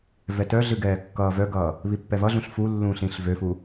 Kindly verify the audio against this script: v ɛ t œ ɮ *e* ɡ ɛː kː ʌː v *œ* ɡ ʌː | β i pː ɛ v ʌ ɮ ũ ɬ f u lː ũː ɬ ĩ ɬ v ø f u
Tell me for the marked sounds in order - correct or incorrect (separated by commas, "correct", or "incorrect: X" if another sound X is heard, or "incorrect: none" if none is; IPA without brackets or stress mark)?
incorrect: ɨ, correct